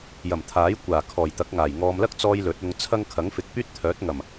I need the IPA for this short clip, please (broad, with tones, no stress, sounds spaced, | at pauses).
j ɐ˨˩ m t̪ʰ aː˨˥ j kʷ aː˨˩ kʰ ɔː˨˩ j t̪ ɐ˨˥ k̚ ŋ aː˨˩ j ŋ ɔː˧ m l ɐ˥ k̚ t͡s ɔː˧ j l ɵ˨˥ t̚ ʊ˧ ŋ t͡sʰ ɐ˥ ŋ kʰ ɐ˨˥ ŋ f ɪ˨ k̚ p yː˥ t̚ t̪ʰ œː˨˥ t̚ ŋ ɐ˨˩ m